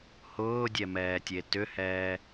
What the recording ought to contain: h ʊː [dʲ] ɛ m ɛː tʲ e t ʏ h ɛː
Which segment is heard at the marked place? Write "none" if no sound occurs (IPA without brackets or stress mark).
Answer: dʲ